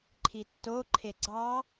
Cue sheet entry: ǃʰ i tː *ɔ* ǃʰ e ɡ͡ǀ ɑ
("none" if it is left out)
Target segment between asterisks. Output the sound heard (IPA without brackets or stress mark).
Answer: o